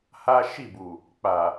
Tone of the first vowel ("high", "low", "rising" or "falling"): high